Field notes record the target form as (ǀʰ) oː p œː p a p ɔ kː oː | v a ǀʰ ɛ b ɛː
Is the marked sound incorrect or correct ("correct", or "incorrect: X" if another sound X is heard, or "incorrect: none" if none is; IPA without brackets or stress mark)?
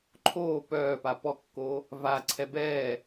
incorrect: ǃʰ